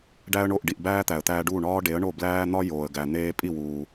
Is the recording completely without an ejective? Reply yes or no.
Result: no